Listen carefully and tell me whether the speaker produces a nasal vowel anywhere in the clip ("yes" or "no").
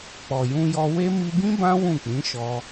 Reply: yes